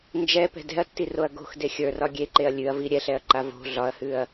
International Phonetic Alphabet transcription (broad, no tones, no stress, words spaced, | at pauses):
nd͡ʒɛpɛ̤ dɛ̤ɐ̯tːiroɐ̯ ɡo̤xde xʲə˞rɒ ɡʲeǃeɐ̯ lʲʉɐ̯vi ɾʲɛɬɛɐ̯ǃa vo̤ ɮɒɐ̯hʉɐ̯